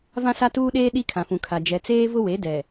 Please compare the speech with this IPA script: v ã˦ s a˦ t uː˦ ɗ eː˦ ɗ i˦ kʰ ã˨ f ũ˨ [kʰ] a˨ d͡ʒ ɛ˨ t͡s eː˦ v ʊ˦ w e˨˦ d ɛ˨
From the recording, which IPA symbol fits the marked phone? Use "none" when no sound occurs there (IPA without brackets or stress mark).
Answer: kʰ